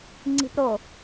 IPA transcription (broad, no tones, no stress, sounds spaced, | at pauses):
ŋ͡ǀ i̤ p ɾ o